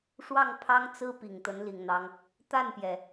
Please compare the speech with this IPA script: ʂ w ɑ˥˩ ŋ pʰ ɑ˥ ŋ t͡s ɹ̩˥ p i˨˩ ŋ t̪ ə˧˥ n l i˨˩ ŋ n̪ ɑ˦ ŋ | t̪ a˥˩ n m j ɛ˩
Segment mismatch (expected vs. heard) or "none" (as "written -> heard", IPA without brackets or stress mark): m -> p